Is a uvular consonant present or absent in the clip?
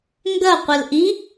present